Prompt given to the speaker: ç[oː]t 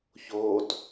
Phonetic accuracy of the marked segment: correct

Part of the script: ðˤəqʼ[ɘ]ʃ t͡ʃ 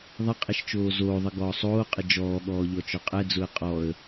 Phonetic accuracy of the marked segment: incorrect: ɛ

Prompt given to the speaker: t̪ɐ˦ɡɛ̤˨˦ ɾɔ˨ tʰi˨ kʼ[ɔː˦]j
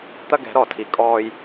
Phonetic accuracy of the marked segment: correct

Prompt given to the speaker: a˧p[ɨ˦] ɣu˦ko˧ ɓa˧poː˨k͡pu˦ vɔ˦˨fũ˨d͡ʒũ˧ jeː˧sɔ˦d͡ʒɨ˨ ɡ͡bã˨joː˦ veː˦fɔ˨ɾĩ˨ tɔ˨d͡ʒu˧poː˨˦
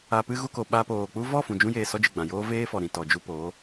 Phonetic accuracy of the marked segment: correct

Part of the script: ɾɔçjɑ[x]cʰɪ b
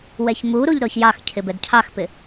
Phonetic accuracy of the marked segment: correct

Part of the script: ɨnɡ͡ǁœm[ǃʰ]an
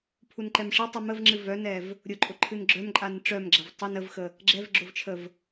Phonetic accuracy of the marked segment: incorrect: ǃʼ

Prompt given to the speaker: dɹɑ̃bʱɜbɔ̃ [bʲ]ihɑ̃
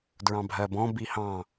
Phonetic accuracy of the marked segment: incorrect: b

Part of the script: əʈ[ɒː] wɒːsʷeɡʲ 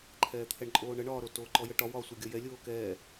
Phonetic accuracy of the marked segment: incorrect: ɒ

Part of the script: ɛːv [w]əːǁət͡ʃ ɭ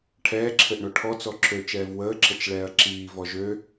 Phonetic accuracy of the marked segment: correct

